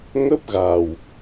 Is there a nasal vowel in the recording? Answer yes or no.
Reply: no